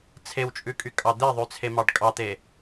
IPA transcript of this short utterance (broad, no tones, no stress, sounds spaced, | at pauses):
t͡sʰ e w t͡ʃʼ ʉ kʼ y kʼ ɑ d̪ e ðˤ ʉ t͡sʰ e m ɑ ɖ kʼ ɑ t̪ e